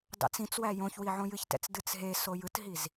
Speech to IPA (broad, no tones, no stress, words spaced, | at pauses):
dɑ̰t͡sĩt͡swæ jõçwi ʕõjɨçtɛ̰t͡s dɨt͡sɦeso jɯtɦiz